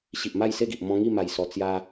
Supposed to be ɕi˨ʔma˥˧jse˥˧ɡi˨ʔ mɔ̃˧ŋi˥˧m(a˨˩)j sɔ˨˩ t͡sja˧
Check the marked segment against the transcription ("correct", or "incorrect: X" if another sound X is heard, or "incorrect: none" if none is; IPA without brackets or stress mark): correct